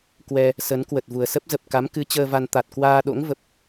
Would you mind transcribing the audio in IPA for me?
kwɛ˧ | sə˨˦n kwə˨˩t̚vu˨˩ə̯sə˦˥p̚zə˨˩p̚ ka˨˦mkɨ˨˦ t͡ɕəː˧va˧n t̪a˨˩t̚kwaː˧ ɗo̰˧˥ŋvə˨˩p̚

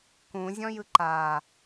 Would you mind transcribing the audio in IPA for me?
kũzʲɔ̃jɯ ǃa

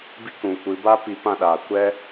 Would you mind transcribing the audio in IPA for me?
bi˦kũ˨kʷɨ˨˦ ba˦pi˧pã˦˨ɗaː˨ kʷɛ˦

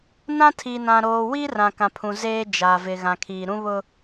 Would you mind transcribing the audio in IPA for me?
nã˦tʰi˨nã˨ ɾoː˨wi˦ rã˨kã˨pʰũ˨ zeː˦d͡ʒa˨ vɪ˨ɣã˨kʰiː˨ ɾũ˦βʊ˦

